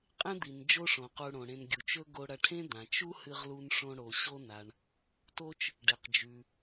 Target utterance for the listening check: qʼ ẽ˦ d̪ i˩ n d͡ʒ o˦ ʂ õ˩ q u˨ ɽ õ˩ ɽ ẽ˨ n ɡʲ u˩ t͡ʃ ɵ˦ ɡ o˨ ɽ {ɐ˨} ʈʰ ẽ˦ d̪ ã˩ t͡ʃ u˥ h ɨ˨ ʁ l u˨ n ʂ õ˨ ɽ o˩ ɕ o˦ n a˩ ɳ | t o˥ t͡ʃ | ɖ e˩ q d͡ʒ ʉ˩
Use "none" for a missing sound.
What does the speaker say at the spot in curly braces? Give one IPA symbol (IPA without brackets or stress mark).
ɐ˨